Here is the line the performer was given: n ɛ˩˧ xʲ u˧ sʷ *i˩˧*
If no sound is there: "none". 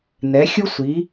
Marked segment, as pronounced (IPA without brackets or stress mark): i˩˧